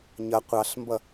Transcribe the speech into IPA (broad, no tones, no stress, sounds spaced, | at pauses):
ɲ ʌ qʷ ɑ ɬ m b ʌ